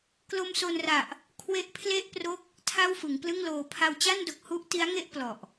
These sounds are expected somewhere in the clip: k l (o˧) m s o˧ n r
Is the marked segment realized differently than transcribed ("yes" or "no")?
no